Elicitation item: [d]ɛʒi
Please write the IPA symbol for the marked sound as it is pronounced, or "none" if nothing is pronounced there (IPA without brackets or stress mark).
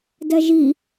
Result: d